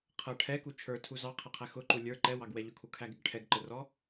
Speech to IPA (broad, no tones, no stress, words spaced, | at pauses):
qʰʌ ʈʰɛku t͡ʃʰə˞tʰu zɑqʰʌqʰæ xʊǃu lʲə˞ ǃɛwɑɡwɛ ʎʊkʰukʰæɡɪɡ ʈʰɛɡǃərɔ